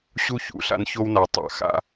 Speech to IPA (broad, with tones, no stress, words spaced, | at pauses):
ɕu˦çṵ˨ɬa̰˦n ço˦wna˨ tˤa̰˨xa̰˦